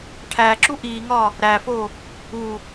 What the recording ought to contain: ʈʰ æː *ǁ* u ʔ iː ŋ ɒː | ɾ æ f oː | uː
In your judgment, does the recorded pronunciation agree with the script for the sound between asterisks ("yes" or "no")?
yes